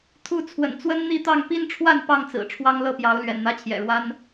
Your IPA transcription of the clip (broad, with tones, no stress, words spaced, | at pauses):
t̪ʰu˥˨ t͡sʰwə̰˨˩nt͡swə˦nn̪i˥˨t̪ɑ˥˨ŋ pi˦nʈ͡ʂʰwa˥˨n pɑ˥˨ŋt͡sɹ̩˨˩ ʈ͡ʂʰwɑ˦ŋlɤ˥˨pjɑ˨˦ʊ̯ lɥɛ̰˨˩nn̪ä˥˨t͡ɕʰjɛ̰˨˩ɻwa˦n